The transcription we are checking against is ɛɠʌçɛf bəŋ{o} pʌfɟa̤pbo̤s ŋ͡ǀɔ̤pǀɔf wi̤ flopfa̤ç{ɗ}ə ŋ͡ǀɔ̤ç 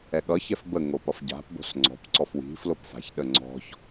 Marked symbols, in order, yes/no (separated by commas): yes, yes